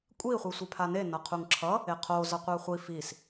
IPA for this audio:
kʷʼ i χʷ i sʷ e pʰ a n e n ʌ qʰ u ŋ ǁʰ ʌ | e qʰ o z ʌ qʷ ɛ χʷ i f i s

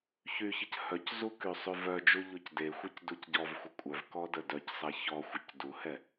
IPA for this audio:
ç y ç ə c h œ c z u k y sˤ y v œ d͡ʒ u ʎ o c d e xʷ e c d u c ɟ ɔ v xʷ ə kʷʼ œ v k ɔ d ə d œ c sˤ ɛ ç ɔ xʷ ə c d u h ɛ

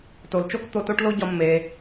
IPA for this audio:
t o˩ l t͡ʃ o˥ k t̪ o˧ t o˥ ʈ l o˥ ɟ ɒ˧ mː e˩

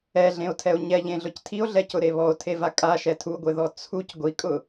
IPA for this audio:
ɛ ɮ ẽ o̯ tʰ ɛ o̯ ɲ ɛ ʎ ẽ ɮ ʊ c tʰ i o̯ ɮ ɛ c ʊ ɾ e β ɔ o̯ tʰ e v a kʼ a ʃ ɛ tʰ u ɡʷ e ð ɔ t͡sʰ u c ɡʷ i kʼ ʊ

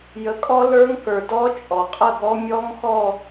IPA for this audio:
j ə˩˥ kʼ ɔ˦˥ l ə˞˦˥ ŋ k ə˞˩ d ɔ˦˥ t͡ʃʼ ɔ˩ qʼ ə˥˨ ɡ ɔ˦˥ mʲ ɔ˦˥ ŋ x ɔ˥˨

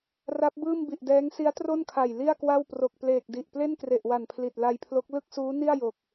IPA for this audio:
r a˦˥ p̚ b ɯː˥˩ m b i˨˩ ʔ d ɛː˦˥ ŋ s i˦˥ a̯ t r o˥˩ n kʰ a˨˩ j l i˥˩ a̯ k w a˥˩ w p r o˨˩ k̚ p l eː˨˩ k̚ d i˨˩ ʔ p l e˥˩ n k r e˨˩ ʔ w a˨˩ n pʰ l i˨˩ t̚ l a˧ j pʰ l o˦˥ k̚ l ɯ˥˩ k̚ s uː˦˥ n i˥˩ a̯ j o˨˩ k̚

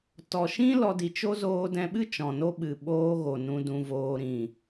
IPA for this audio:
t ɔ˨ ʃ ĩ˦ l ɔ˧ d i˨ t͡ʃ o˦ z oː˧ d ɛ̃˧ ɓ ɨ˦ t͡ʃ ɔ̃˨ n o˦ ɓ ɨ˨ ɓ oː˧ ɣ o˨ n ũ˧ d ũ˧ v oː˧ ɾ ĩ˨

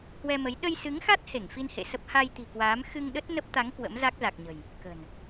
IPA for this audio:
h w ɛ˧ m ə˨˦ j ɗ ə˧ j s ɨ˨˦ ŋ x a˦˥ t̚ h e˧˩ ŋ f i˧ n h ḛ˧˨ s ə˦˥ p̚ h a˧ j t̪ i̤˨˩ k w aː˨˦ m x ɨ˧ ŋ ɗ ə˦˥ t̚ n ə˦˥ p̚ t̪ a˨˦ ŋ k w ə̰˧˥ m z a˦˥ k̚ z a˨˩ k̚ ɲ ə̤˨˩ j | k ə̤˨˩ n

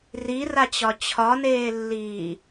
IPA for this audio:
r i r a t͡ɕ ɒ t͡ɕʰ ɒ n eː lː iː

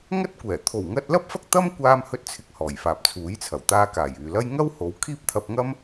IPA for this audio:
ŋ ɐ˥ t̚ kʷ ɛː˨˩ t̪ʰ o˨˩ w ŋ ɐ˧ t̚ l ɐ˥ p̚ f ɐ˥ k̚ t̪ ɐ˥ m kʷ aː˧ m h ɵ˥ t̚ t͡sʰ ɪ˧ k̚ h ɔː˨˩ j f aː˨ p̚ t͡sʰ uː˨˥ j t͡sʰ ɐ˨˩ w t̪ aː˧ k aː˨˩ j yː˨ l ɐ˥ j ŋ ɐ˥ w h o˨˧ w kʰ iː˥ p̚ t̪ʰ ɐ˧ p̚ ŋ ɐ˥ m

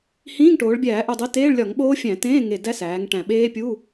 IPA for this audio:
h ĩː˧˥˧ ŋ ʈ oː˩˧ ɭ bʲ æː˧˩˧ ʔ u˨˩ dˤ i˨˥ t eː˧˥˧ ɭ lʲ ɒ˧˩˧ ŋ ɓ oː˦˥ fʲ æ̃˧˩˧ t ẽː˧˥˧ ŋ e˨˩ d æ˦˥ s æː˩˧ ŋ ʈ æ̃˨˩ ɓ eː˦˥ pʲ u˧˥˧

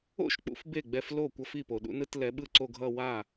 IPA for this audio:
o̰˥˩ ʃ k͡p ṵ˨˦ f b e˥˩ ɡ͡b ɛ˥˧ f l o˥˩ kʷ ʌ˥˧ f i˥˩ p o˩ ɗ ṵ˨˦ n ɯ˥˧ t l ɛ˨˦ ɓ ɯ˥˧ ǀ o˥˧ ɡʱ ʌ˥˧ w a˥˩

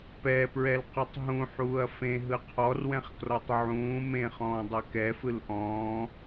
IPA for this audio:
p ɛ p ɹ ɛ l q ə tˤ ɦ ũ ħ uː ɐ̯ f ẽ ɦ ɯ qʰ ɔ r w ɛ̃ χ k r ɔ tˤ ʕ ũː m ẽ χ ɔ̃ː dˤ ɛ k ɛ f ɯ l ʔ ɔ̃ː

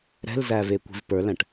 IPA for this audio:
ɾ ɛ̤ l z æ v e kʷ i̤ v p ə˞ l æ̃ ʈ

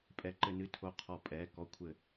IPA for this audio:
pʼ ɛ˨˥ ǃ ɘ˧ n ɨ˧ tʰ o˧ qʰ ɔ˧˩˧ pʼ ɛ˩˧˩ k ɔ˧ kʷʰ ɘ˧˩˧

